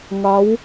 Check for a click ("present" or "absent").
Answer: absent